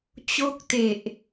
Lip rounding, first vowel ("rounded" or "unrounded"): rounded